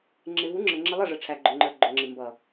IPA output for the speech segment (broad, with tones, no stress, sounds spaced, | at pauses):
ŋ͡ǁ ɪ˨ v u˨˦ ŋ͡ǁ ə˨ ŋ͡ǁ ɪ˧ lˠ ʌ˦˨ ʐ ə˨ ʈ͡ʂʰ æ˨ ɡ͡ǃ ʊ˨ ŋ͡ǃ ə˞˨ ɡ͡ǃ ʊ˨ ŋ͡ǁ ɪ˨ m b ʌ˨